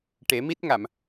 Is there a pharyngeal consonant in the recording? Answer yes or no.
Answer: no